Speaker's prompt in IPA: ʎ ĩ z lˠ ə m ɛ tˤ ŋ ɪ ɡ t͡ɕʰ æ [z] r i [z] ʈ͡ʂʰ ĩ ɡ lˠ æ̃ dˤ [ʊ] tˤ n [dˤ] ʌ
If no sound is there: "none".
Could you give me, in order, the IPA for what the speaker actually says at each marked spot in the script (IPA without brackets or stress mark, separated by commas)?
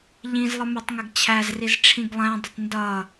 z, z, ʊ, d